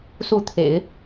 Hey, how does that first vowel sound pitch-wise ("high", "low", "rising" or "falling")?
falling